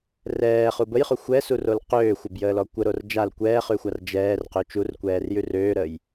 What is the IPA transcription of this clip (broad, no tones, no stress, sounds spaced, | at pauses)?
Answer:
r ɛː χ u b ə j χ u xʷ ɛ s u r o l q øː xʷ ə b j əː l ɔ kʷ ə ɾ o r d͡ʒ a l kʷ ɛː χ ʉ xʷ a r d͡ʒ ɛː r q ø t͡ʃ u r kʷ ɛː r j ʉ r øː ɾ əː j